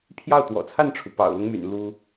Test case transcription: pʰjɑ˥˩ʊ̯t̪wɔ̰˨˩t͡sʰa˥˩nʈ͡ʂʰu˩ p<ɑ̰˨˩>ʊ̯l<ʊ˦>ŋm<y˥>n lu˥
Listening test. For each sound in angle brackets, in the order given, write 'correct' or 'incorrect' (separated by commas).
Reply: correct, correct, incorrect